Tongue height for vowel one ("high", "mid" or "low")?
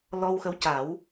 mid